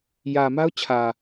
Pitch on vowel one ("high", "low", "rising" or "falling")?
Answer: low